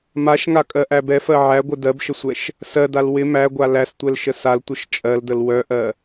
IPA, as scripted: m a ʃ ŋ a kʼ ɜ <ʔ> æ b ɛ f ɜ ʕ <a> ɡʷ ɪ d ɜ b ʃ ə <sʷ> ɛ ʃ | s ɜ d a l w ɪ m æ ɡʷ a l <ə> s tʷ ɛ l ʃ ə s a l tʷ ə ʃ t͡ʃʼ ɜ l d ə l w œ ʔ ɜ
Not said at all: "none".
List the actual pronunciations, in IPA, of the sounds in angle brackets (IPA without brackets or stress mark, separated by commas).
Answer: ʔ, æ, sʷ, æ